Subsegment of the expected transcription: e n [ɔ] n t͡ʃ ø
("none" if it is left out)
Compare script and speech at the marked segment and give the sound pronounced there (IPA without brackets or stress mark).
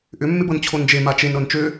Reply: ɤ